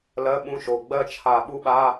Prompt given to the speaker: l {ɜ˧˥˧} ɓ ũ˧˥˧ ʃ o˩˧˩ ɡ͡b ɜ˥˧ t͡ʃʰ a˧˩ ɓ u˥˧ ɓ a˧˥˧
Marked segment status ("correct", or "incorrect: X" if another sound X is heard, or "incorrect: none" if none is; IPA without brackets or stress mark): correct